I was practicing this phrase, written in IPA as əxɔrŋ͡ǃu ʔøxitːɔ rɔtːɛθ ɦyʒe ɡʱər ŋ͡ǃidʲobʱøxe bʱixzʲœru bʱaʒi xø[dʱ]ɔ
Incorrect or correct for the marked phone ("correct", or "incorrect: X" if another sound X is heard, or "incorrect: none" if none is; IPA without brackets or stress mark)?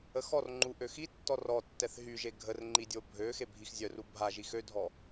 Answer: correct